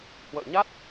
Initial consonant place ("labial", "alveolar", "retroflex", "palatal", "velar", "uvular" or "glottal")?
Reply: glottal